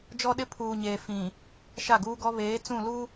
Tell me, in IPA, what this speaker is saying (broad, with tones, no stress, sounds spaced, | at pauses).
d͡ʒ ɔ˦ ɗ ɪ˦ pʰ uː˨ ɲ eː˨ f ĩ˨ | ʃ a˦˨ ɡ uː˦ ɡ ɔ˦ β eː˨˦ t͡s ũ˦˨ l u˦